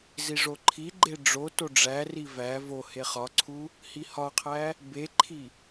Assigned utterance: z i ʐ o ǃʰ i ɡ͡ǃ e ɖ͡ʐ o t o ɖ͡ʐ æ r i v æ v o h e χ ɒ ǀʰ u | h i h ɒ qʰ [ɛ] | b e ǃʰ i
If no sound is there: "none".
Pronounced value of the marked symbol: æ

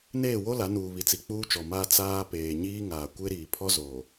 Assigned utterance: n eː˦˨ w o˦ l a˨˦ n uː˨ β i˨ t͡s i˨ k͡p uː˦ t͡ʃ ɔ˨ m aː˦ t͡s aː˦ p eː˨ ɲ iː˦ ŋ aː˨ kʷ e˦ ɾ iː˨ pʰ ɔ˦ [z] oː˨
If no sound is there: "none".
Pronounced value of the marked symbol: z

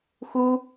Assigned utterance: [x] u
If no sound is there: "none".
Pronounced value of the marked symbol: x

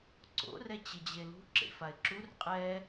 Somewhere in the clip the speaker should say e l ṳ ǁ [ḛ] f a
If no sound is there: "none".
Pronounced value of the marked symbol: ḛ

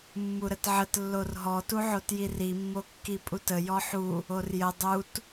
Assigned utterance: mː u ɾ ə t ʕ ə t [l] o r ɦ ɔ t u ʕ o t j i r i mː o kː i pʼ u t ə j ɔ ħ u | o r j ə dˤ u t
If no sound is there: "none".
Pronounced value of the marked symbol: lː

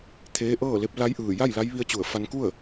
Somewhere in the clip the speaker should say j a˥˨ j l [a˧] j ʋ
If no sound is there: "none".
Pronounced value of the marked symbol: a˧˥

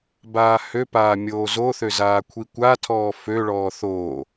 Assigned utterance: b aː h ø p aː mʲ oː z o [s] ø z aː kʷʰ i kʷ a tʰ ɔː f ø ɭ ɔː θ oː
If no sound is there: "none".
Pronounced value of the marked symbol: θ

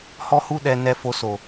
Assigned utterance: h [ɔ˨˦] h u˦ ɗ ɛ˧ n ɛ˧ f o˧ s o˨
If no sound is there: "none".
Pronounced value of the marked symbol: ɔ˦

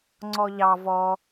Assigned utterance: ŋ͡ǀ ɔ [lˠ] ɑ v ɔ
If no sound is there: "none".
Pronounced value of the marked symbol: ʎ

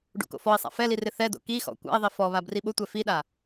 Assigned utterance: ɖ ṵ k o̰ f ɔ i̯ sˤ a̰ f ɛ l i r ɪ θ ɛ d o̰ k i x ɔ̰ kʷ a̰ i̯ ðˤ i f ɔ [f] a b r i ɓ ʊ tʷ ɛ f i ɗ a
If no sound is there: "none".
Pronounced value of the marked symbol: β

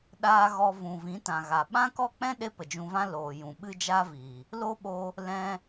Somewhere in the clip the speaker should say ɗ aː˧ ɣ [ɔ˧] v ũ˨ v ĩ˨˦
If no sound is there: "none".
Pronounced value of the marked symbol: ɔ˧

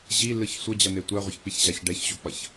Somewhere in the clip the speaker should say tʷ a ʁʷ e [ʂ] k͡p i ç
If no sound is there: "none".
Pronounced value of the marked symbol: ç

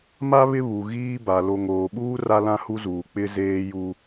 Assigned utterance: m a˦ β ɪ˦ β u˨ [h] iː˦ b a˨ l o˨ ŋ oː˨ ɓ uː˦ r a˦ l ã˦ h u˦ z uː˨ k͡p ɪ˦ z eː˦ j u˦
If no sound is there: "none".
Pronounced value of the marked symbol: ɣ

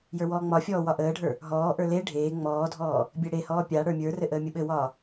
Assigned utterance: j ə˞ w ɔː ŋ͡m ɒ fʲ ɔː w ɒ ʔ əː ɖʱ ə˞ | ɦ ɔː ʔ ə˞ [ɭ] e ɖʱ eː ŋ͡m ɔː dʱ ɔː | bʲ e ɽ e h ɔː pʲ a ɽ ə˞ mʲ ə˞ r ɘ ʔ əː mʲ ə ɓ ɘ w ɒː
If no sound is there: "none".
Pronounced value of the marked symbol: l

